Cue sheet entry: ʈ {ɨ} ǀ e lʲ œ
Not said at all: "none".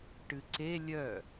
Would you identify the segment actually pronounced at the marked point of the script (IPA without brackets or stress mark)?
ɨ